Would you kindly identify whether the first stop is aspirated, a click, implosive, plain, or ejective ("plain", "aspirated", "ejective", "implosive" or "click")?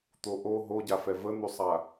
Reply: plain